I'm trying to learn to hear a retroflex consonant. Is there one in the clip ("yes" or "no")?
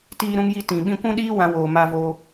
no